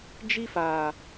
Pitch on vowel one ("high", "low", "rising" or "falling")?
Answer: high